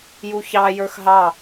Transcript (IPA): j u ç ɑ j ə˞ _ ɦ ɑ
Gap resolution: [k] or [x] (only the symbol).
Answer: x